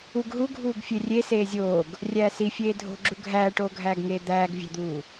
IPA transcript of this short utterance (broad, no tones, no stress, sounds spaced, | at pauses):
u ɡ ɦ u ɡʱ uː ɡ fʲ e rʲ e s eː zʲ oː ɡ | rʲ æː s i fʲ eː dʱ o̤ ɡ͡ǁ u ɡʱ æː ʈ oː ɡʱ æː ɡ ŋ eː d̪ æː ɡ vʲ æ̤ d̪ uː